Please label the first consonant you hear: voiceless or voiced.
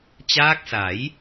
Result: voiceless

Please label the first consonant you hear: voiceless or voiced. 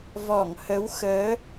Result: voiced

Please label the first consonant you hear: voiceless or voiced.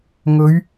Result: voiced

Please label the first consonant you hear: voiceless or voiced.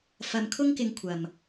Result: voiceless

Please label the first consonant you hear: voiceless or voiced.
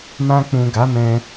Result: voiced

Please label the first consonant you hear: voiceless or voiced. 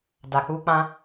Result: voiced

